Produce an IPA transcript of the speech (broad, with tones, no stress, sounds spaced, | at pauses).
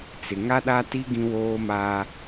t͡s ɪ˨ ŋ a˦ ɗ a˦ t i˦ ɡ ĩ˦ w oː˦ m aː˦